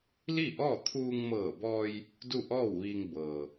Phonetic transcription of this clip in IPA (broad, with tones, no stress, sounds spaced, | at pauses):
l i˥˨ ʔ ɔː˥˨ t̪ʰ uː˧ ŋ m ɤː˧˩ b ɔː˧ j | d u˥˨ ʔ ɔː˥˨ w ʋ iː˧ ŋ b ɤː˩